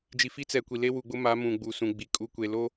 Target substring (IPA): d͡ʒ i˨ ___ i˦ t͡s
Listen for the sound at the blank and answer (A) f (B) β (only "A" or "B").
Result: A